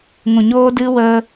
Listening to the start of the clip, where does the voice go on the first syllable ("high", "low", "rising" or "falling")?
low